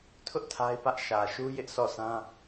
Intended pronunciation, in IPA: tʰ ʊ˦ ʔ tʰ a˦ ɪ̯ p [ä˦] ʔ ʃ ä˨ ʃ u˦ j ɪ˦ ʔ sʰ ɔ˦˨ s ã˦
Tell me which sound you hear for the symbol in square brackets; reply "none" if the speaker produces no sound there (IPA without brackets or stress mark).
ä˦